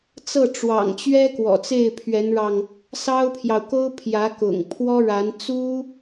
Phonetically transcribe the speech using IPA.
t͡s ɤ˥˩ ʈ͡ʂ w ɑ̰˨˩ ŋ t͡ɕ ɥ ɛ˥ k w ɔ̰˨˩ t͡s e˥˩ ɪ̯ pʰ ɥ ɛ˧˥ n ɻ ɑ˧ ŋ | s ɑ˥ ʊ̯ pʰ j ɑ˨ ʊ̯ k o˥ ʊ̯ pʰ j ä˧˥ k ʊ̰˨˩ ŋ pʰ w ɔ˥ ɻ a˧˥ n t͡s u˥

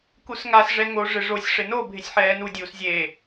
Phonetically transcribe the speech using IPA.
k u s ŋ a s ʐ ɛ ŋ o ʐ ɪ ʐ o sʲ ʂ ɪ n o bʱ ɪ sʲ ħ ɛː n u dʲ uː s zʲ eː

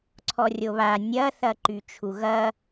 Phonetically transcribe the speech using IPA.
ǀʰ ɔ rʲ o β a nʲ ɐ θ ɐ ǃ y t͡ʃʰ u ɣ ɐ

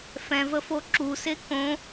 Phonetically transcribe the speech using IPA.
f ɛ̃ v ə f o ǁ u s e k õ

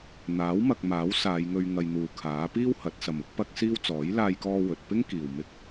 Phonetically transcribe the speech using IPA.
n̪ aː˨˥ w m ɐ˨ k̚ m aː˨˥ w s aː˨˧ j ŋ ɵ˧ ɥ ŋ ɐ˧ j n̪ uː˨˧ kʰ aː˨˥ p iː˥ w h ɐ˨˥ t̚ s ɐ˨ m ʊ˥ k̚ p ɐ˥ k̚ s iː˥ w t͡s ɔː˨˥ j l aː˧ j k ɔː˧ w ɵ˨ t̚ p ɪ˥ ŋ k iː˨ w m ɪ˧ k̚

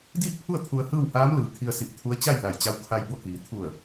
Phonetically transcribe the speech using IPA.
d iː˥˨ k̚ pʰ u˥˨ ə̯ t̪ʰ u˧ ə̯ h ɯː˥˨ w h aː˧˥ m l ɯː˩ kʰ i˧ ə̯ s i˧˩ p̚ t̪ʰ u˧˥ ə̯ t͡ɕ a˥˨ j l a˧˩ j t͡ɕ a˧ w kʰ a˧ j b o˥˨ k iː˩ t̪ʰ u˧˩ ə̯

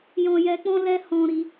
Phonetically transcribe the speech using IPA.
j ɔ̃˧ j ɛ˧ k͡p ɔ̃˦ l ɛ˦ h ɔ̃˧ ɾ i˧

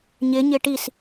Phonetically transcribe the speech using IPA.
ɲ ɪ ɲ ɪ ʈ i s

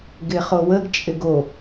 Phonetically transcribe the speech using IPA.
ɡ ɪ χ o w ə ɡ t͡ʃʼ ɪ ɡ o

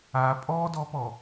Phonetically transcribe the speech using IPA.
a pʼ ɔ d ɔ p ɔ

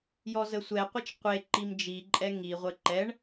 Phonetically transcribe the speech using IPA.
j ɔ z ə sʷ ɛ qʷ e t͡ʃ qʷ e ǃ i m d͡ʒ i ǃʼ ɛ ŋ i ʁʷ ə ǃ ɛ ɳ

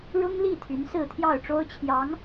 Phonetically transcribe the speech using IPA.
ɻ ʊ˥ ŋ l i˥˩ t̪ʰ y˧˥ n s ɹ̩˥˧ t̪ʰ j ɑ˥˩ ʊ̯ ʈ͡ʂ o˥ ʊ̯ t͡ɕʰ j ɑ˧˥ ŋ

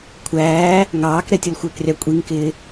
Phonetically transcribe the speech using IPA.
kʷʰ æː | ŋ ɑː k ɾ ɛ tʲ ʌ l xʷ ɪː k rʲ ɑ kʷʼ i ŋ k ɪː

